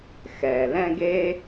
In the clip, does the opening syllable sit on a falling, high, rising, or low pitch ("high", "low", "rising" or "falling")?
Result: low